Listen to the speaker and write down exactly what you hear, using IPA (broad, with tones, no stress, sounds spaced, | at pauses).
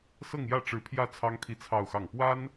s ɤ˥˧ ŋ j ä˥˩ ʈ͡ʂ ɻ̩˧˥ pʰ j ä˥˩ t͡sʰ ɑ˥ ŋ t̪ʰ i˥˧ t͡sʰ ɑ˥˧ ʊ̯ x ɑ˥˩ ŋ p w a˥ n